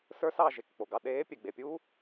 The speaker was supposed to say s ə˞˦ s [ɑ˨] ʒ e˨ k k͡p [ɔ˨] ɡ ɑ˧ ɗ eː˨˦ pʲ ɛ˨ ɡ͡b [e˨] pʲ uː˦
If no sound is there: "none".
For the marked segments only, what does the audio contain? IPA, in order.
ɑ˦˨, o˨, e˨

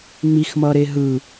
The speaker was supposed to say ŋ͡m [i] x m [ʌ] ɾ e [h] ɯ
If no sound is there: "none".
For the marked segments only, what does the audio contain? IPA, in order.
i, ʌ, ɦ

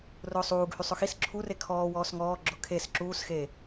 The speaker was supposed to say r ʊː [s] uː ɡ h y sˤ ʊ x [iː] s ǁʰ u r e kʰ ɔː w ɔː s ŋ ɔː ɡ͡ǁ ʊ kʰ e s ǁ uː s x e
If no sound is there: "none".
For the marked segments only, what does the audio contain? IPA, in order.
sˤ, i

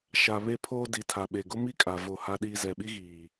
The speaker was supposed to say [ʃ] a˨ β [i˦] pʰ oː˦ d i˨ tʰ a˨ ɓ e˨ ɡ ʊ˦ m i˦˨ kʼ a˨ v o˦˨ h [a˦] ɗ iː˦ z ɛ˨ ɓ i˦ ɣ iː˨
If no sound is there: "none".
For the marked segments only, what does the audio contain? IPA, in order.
ʃ, e˦, a˦

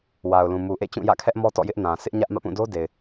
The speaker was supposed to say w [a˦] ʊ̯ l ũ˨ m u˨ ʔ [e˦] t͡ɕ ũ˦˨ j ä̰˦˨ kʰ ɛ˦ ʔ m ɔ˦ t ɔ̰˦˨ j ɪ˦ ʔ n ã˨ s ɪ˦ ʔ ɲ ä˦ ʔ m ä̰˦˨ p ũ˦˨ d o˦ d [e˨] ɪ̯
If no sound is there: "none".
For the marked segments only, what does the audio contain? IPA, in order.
a˨, ḛ˦˨, e˨

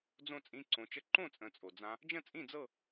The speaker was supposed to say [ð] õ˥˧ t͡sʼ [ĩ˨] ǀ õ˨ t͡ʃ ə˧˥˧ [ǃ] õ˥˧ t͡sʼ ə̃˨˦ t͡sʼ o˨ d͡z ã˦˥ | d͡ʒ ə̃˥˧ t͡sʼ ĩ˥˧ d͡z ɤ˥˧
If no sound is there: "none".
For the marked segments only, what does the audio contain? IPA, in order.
d͡z, ĩ˧˥˧, ǃ

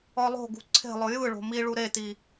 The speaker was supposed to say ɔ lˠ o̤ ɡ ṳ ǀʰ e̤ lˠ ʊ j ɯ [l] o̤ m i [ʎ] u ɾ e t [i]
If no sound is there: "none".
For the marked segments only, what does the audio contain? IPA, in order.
ɭ, ɭ, i

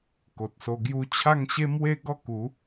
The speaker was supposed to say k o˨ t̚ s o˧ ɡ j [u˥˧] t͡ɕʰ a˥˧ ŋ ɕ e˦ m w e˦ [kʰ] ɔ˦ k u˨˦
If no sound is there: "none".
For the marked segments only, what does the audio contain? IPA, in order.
u˥˧, ɡ

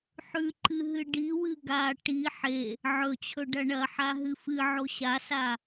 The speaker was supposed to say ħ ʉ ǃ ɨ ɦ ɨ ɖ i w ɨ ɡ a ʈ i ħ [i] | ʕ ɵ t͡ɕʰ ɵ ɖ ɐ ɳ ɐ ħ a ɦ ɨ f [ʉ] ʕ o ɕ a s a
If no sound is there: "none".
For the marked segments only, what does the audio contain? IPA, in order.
e, ɨ

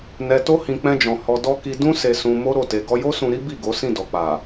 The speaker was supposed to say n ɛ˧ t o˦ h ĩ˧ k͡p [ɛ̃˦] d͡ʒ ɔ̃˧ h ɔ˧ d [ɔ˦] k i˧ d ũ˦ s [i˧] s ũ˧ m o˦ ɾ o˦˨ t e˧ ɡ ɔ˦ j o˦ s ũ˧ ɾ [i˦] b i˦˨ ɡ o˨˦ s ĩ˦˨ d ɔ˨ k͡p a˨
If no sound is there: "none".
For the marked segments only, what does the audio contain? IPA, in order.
ɛ̃˦, ɔ˦, e˧, i˦

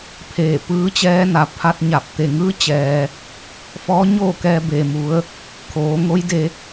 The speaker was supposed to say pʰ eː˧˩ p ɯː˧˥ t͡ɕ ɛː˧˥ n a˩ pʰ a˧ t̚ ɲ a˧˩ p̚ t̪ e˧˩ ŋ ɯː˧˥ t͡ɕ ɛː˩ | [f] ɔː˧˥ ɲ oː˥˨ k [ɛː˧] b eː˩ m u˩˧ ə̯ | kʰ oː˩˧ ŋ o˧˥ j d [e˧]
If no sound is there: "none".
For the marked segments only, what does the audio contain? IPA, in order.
f, ɛː˧, e˧

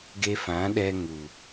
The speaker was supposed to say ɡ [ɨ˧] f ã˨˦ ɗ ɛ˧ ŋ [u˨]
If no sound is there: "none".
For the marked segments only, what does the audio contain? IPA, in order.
e˧, u˨

